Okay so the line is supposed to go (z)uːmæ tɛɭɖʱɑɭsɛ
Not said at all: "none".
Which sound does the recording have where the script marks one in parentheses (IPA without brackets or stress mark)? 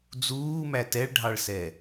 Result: d͡z